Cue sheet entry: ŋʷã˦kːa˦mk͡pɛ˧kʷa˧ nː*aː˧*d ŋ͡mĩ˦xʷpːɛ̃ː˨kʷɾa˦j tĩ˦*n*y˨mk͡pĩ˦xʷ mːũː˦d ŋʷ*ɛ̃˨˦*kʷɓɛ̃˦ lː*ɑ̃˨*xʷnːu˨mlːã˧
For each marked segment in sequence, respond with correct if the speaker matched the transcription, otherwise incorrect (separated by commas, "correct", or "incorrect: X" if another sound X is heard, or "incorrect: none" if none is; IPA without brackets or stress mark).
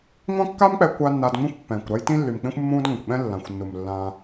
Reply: correct, incorrect: lː, incorrect: ɛ̃˨, incorrect: ã˨